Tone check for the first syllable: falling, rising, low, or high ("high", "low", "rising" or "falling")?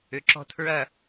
low